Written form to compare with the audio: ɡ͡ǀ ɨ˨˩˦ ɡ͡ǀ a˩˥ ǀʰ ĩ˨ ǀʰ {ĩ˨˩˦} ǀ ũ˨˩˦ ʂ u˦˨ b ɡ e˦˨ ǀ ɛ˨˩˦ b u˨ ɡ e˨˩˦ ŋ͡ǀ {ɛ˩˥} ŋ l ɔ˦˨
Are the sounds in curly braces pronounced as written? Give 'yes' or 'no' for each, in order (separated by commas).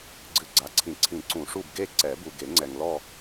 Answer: yes, no